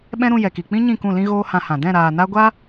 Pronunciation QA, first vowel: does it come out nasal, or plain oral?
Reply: nasal